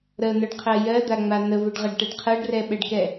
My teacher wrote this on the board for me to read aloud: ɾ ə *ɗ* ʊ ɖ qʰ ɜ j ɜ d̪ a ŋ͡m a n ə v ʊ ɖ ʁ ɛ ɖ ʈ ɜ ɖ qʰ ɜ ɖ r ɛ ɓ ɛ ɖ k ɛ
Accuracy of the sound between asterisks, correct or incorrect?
incorrect